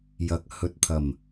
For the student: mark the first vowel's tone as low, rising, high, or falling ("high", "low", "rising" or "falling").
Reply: low